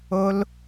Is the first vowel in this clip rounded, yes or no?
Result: yes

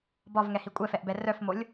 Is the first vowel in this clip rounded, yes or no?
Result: yes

